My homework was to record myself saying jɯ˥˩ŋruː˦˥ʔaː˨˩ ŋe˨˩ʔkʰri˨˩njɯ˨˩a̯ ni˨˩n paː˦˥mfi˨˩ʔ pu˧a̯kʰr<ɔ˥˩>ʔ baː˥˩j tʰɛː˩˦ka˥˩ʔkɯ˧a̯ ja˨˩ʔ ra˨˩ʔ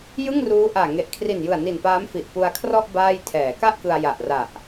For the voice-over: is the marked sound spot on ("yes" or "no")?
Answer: yes